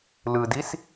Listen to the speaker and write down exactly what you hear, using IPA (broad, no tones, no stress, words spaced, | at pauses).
lɯdis